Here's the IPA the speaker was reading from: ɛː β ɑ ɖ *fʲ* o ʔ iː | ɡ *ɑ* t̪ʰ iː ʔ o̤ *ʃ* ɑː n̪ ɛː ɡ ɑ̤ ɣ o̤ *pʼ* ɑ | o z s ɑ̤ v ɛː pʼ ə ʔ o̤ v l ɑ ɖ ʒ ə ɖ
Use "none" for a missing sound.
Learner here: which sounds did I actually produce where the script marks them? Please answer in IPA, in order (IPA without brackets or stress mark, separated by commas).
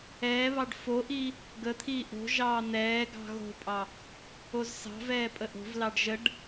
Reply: f, ə, ʒ, pʼ